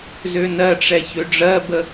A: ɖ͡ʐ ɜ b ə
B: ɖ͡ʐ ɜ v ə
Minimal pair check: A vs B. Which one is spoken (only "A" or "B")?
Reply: A